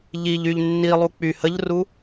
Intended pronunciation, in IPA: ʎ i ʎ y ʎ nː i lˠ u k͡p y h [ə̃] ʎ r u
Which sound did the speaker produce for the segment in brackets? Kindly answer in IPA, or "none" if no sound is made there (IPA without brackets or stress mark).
ə